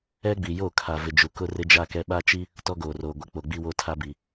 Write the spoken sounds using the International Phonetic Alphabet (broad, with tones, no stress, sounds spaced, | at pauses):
ɛ˦ ɡ͡b i˨ j o˦˨ kʰ a˨ v ɪ˨ d͡ʒ u˨ k ʊ˦ r ɪ˦ d͡ʒ a˦ k ɛ˦ ɓ a˦ t͡ʃ i˦ | t ɔ˦ ɡ oː˨ r oː˨ ɡʷ ɪ˨˦ k͡p o˨ ɡ͡b i˦ w o˦ tʰ a˦ b i˨